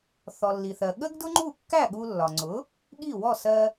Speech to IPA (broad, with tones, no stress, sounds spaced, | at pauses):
θ ɔ˩ lː i˩ θ ɜ˩ ɠ ə˥ ɡ d ʊ˥ ŋ͡ǃ u˥˩ kː æ˥˩ ɠ u˧ lː ɒ˩ ŋ͡ǀ ʊ˩˥ | ɠ i˥˩ w ɔ˥˩ s ɜ˧